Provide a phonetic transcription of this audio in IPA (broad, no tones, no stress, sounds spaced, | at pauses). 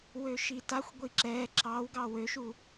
w ø ʃ i t a xʷ ɡʷ i ǁ ɛː ǁ ɑ w ɡ ɑ w ø ʃ u